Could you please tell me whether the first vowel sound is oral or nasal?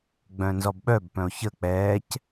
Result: nasal